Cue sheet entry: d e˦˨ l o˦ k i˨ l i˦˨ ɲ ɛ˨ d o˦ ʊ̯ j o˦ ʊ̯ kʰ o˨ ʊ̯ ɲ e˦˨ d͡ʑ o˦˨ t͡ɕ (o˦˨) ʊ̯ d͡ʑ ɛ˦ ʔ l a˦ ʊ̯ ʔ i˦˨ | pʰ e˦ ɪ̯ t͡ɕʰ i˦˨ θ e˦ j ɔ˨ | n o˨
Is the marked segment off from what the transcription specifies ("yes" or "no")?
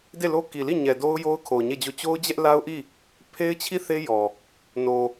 yes